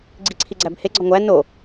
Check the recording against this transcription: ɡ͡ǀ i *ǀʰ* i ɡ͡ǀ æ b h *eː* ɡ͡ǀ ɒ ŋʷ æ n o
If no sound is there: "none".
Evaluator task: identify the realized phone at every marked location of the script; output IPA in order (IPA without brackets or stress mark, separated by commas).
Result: ǀʰ, e